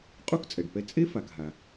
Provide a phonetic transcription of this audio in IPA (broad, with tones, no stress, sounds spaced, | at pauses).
qʼ u˥ k t͡sʼ ɛ˩ ɖ p ɛ˧ t͡sʼ e˥ f a˩ k ɦ a˩